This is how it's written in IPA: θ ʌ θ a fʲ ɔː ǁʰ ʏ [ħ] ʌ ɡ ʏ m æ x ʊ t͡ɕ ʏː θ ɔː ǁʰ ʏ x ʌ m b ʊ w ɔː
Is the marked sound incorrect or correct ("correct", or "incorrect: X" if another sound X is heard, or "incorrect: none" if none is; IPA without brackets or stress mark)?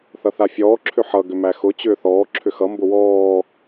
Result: correct